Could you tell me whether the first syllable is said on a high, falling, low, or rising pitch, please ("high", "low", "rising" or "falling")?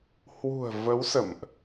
low